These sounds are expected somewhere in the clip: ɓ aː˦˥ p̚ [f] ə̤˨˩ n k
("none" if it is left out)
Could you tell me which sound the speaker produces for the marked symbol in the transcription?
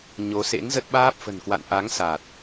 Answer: f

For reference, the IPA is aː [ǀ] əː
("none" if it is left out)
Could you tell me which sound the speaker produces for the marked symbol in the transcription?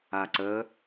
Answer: ǀ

